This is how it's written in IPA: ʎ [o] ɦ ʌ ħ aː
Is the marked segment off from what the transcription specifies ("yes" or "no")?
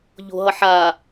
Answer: yes